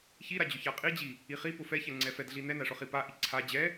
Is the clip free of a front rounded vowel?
yes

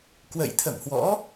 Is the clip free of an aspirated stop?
no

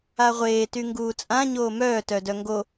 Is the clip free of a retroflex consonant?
yes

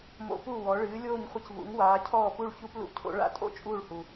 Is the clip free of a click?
yes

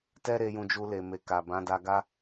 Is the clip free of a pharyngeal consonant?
yes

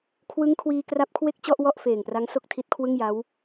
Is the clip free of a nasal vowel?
yes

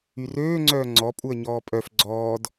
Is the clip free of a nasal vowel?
yes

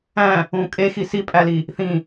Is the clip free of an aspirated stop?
yes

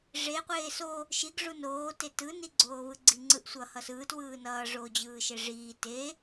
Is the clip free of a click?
no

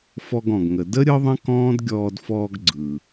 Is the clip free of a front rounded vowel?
yes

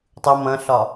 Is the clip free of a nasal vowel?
no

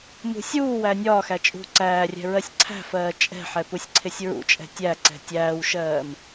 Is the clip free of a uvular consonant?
yes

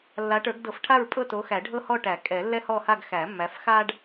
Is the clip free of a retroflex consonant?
no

